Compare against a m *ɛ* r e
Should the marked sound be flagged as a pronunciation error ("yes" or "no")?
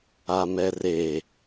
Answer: no